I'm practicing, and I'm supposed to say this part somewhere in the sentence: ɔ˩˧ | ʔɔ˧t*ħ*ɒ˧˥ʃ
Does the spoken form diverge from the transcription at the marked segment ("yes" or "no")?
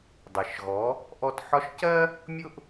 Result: no